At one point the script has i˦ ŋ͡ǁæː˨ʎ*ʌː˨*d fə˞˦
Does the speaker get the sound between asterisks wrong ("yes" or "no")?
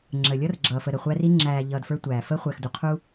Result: no